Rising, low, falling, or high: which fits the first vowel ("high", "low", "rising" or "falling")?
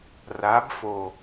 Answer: rising